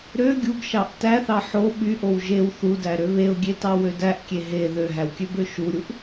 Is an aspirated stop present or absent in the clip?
absent